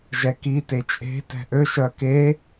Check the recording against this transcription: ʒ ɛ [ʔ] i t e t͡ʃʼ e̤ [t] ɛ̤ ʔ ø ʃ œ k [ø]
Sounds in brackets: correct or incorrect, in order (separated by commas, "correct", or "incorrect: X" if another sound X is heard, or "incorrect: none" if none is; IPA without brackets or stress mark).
incorrect: k, correct, incorrect: e